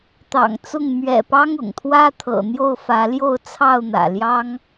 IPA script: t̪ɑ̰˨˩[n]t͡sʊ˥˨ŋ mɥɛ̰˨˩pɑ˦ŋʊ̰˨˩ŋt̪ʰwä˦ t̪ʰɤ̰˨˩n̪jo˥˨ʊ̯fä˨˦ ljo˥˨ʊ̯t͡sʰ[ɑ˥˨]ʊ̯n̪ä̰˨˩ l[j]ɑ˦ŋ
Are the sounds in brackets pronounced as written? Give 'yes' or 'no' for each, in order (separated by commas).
no, yes, yes